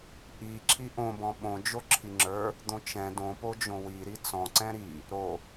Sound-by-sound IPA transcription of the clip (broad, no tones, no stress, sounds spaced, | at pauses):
ʔ i ǁʰ i ʔ õ b ɔ̃ ɓ õ d͡ʒ o ǁʰ i ŋ͡ǁ ə˞ | d̪ õ t͡ʃ ɛ̃ d õ p o d͡ʒ õ w i ɾ i t͡s ɔ̃ ǀ ɛ̃ ɾ i | ɾ o